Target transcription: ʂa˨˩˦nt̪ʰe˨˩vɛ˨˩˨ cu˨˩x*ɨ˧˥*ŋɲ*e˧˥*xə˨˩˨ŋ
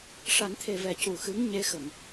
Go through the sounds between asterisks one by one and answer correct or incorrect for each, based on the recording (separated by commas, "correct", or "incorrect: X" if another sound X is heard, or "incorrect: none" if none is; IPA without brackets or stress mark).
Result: correct, correct